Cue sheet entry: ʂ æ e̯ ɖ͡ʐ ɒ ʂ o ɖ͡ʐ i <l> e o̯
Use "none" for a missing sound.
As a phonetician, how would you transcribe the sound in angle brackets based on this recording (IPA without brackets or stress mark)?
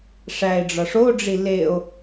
l